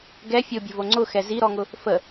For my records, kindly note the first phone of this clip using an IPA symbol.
ɡ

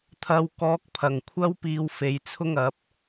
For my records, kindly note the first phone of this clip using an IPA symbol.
t̪ʰ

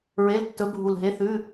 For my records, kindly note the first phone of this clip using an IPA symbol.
ɹ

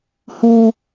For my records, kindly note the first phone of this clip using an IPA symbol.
h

